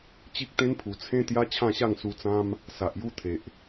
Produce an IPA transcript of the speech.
t͡ɕi˦k̚t̪ẽ˦npʰu˨˩ t͡sʰẽ˦ t̪ja˦ t͡ɕʰã˥˧ɕa˥˧ŋ su˧t͡sã˦m | sa˨ʔju˦t̪ʰe˨ʔ

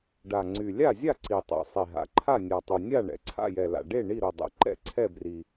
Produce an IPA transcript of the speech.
ɖa˨˩ŋ͡ǀy˨˩ lʲa˥˨zʲa˥˨ǀi˨˩tˤɛ̰˨˩ sˤi˨˩ɦa̰˨˩ǃʰa˥˨ nʲa˨˩tˤy˨˩ nʲa˥˨ ɳɛ̰˨˩ǀʰa̰˥˨jɛ˨˩la̰˨˩ ɖe˥˨ ɳi˥˨ɾo˨˩dˤɛ̰˨˩ ǃɛ̰˥˨ǀʰɛ˥˨bri˨˩

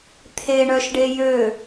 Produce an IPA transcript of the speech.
t̪ʰeɳœʃɖe jø

